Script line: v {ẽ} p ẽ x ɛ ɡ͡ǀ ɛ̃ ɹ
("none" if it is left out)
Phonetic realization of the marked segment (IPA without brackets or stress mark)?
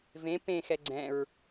ẽ